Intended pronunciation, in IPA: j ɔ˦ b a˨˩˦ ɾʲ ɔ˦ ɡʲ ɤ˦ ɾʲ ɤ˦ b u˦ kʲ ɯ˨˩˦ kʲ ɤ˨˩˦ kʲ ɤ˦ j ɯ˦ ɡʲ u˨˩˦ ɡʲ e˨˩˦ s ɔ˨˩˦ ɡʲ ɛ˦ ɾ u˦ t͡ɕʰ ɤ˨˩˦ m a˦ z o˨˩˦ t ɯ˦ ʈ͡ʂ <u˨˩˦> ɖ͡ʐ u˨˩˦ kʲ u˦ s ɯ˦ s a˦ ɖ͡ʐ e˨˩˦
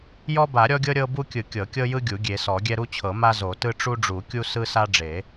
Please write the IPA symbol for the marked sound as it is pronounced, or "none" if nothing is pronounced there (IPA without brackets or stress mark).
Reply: u˦